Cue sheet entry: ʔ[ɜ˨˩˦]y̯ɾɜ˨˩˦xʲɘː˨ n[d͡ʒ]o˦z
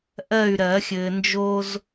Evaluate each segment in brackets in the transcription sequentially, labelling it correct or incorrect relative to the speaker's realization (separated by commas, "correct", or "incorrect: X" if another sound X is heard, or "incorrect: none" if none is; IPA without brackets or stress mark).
incorrect: ɜ˥˨, correct